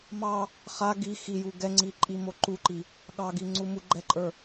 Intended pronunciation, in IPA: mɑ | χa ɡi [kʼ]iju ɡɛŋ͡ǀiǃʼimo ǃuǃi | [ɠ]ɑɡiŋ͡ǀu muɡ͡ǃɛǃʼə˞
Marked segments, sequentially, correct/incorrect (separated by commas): incorrect, correct